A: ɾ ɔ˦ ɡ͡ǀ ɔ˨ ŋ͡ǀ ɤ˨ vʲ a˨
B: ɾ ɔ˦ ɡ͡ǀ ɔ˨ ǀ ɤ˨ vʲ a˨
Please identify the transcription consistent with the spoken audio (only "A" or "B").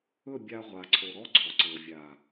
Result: B